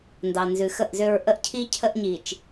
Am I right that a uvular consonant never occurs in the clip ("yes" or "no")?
yes